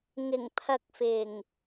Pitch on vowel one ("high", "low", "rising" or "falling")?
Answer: low